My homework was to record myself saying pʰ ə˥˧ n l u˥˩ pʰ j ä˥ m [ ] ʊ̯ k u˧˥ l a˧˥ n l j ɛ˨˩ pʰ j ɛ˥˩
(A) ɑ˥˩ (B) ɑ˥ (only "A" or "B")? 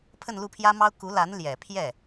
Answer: B